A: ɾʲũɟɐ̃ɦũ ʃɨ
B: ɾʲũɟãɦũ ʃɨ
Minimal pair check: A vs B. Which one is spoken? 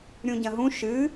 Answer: A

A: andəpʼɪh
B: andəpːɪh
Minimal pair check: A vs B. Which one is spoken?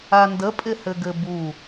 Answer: A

